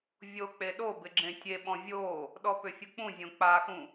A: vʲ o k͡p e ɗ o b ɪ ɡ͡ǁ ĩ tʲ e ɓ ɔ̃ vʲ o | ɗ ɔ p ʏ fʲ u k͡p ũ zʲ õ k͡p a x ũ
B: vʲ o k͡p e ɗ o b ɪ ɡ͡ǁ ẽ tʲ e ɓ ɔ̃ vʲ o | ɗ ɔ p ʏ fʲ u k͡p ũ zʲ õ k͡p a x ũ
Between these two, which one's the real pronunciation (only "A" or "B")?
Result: B